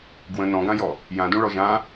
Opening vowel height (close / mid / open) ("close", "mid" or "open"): mid